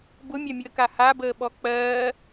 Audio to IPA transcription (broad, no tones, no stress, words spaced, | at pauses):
bʊmʲamʲəːka habəːɓɔ k͡pɜː